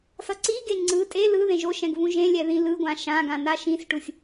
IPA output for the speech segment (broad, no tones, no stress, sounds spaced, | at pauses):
s ʌ ǀ i ɡ e ŋ͡ǀ ɯ tʼ e l ɯ ð ẽ ʒ o ʃ ɛ̃ ɡ v ũ ʒ ẽ lʲ ɛ ð ĩ l ɯ ɡʷ ã ʃ ã ɡ ã n a ʃ ĩ s ʈ u sʲ